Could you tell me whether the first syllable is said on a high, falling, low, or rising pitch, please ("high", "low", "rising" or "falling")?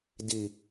low